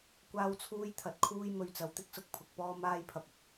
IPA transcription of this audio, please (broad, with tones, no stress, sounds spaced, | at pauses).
kʷ aː˧ w t͡sʰ uː˧ j t̪ʰ ɐ˨˥ t̚ kʰ uː˥ j m ɵ˨ ɥ t͡s ɐ˨˧ w t̪ ɪ˥ k̚ s ʊ˨ k̚ pʰ ʊ˧ k̚ p ɔː˥ m aː˥ j pʰ ɐ˨ p̚ ɪ˥ k̚